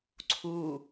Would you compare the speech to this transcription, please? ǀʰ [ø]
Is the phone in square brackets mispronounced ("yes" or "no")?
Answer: yes